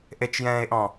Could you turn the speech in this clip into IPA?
ʔ e t͡ʃ j ɛ̃ː e̯ ʔ ɔ̃

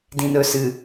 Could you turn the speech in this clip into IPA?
d ĩ˨ n ɵ˨ s ɨ˨

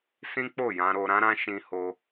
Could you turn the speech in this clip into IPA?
s ĩ˦ k͡p o˦˨ j ã˧ ɾ o˧ ɾ ã˦ ɾ ã˦ ʃ ĩ˧ h o˧

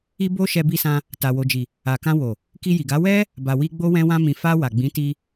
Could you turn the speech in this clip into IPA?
i˧ b o˧ ʃ ɛ˧ b i˧ s ã˧ | t a˨ w o˨ d͡ʒ i˨ | a˨ k ã˧ w o˨ | k i˧ j i˨ ɡ a˨˦ w ɛ˦ | b a˨ w i˧ ɡ͡b o˧ w ɛ̃˧ w ã˧ m ĩ˨ f a˧ w a˨ ɡ͡b ĩ˨˦ t i˧

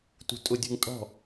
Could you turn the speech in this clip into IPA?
t ṳ tʼ ʊ dʲ ṳ ŋ tʼ ɔ̤

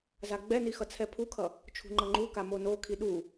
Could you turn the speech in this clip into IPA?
z a ɡ͡b ɛ n i x ʌ t͡sʰ ɛ pʰ u kʰ ʌ | t͡ʃʰ ṳ ŋ͡ǃ ʌ ŋ͡ǃ u k a m o n o kʰ i ɗ u

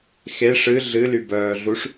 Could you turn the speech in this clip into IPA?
x e ʂ ɨ ɮ ɨ l y b œː ɮ u ʂ

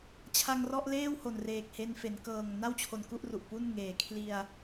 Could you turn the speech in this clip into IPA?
t͡ɕʰ a˧ ŋ r ɔ˥˩ ʔ l eː˥˩ w h o˨˩ n r eː˨˩ k̚ h e˧ n f e˩˦ n k ɤː˨˩ ŋ n a˥˩ w t͡ɕʰ o˨˩ n k u˥˩ ʔ r u˨˩ ʔ p u˥˩ n ŋ eː˩˦ kʰ l i˧ a̯

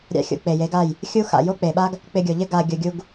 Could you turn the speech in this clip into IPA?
ɾʲ a̰˧ xʲ o̰˨ k͡p e˨ j e˨˦ ɡ a˦˨ j | xʲ u˦ x a̰˨ j o˦ k͡p e˨ ɓ a˦ ɡ | k͡p ɪ˧ ɡʲ o˨ ʎ ɪ˦ ɡ a˧ ɡʲ ʊ˧ ɡʲ u˧ ɡ

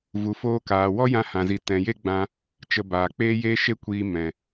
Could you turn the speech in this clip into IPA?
v u˨ f oː˧ k aː˨ w ɔ˦ j ã˧ h ã˨ z i˨ t ɛ̃˨ j e˦ ɡ͡b ã˧ | t͡ʃ ə˧ b aː˨ k͡p eː˦ j eː˦ ʃ e˦ kʷ iː˧ m ɛ̃˨

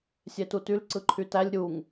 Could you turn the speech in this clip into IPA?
sʲ e t u t y l ǀ ɯ ǃʰ y t æ lʲ ɾʲ u ŋ

